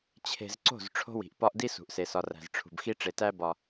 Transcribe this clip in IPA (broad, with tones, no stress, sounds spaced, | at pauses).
t͡ɕʰ e̤˨ z ǀ o̤˦˨ z ʈ͡ʂʰ o̤˦ w i̤˨ ʔ p ɒ˦ ʔ d i˦ s ṳ˨ ʔ s e˨ s ɒ˨ r æ̤˨ z ʈ͡ʂʰ ṳ˨ b x i˦ ʈ͡ʂ e˨ t æ˦ b ɒ˦